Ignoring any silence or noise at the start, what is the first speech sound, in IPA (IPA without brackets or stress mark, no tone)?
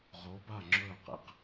ʁ